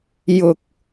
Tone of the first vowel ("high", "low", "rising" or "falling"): low